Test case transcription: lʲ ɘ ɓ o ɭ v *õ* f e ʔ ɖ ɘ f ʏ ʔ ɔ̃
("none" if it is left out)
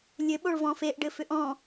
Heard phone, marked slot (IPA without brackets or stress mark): ɔ̃